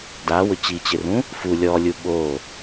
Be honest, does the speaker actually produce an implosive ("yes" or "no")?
yes